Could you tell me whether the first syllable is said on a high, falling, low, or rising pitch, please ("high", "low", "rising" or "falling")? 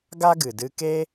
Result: high